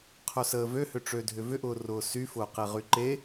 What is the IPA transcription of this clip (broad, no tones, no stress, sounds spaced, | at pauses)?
qʰ œ s əː v ø h ʏ ʈ͡ʂ ø dʱ ʏ v ʏ ʔ ʊː r ʊː s y f ʊː q e ʁ y ǃ e